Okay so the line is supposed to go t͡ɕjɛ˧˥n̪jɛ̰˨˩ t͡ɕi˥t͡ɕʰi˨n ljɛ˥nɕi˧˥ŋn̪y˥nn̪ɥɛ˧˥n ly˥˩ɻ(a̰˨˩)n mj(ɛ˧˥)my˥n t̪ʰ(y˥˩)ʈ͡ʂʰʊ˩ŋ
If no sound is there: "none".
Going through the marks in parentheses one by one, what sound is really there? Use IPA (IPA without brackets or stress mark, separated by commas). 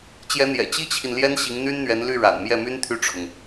a̰˨˩, ɛ˥˩, y˥˩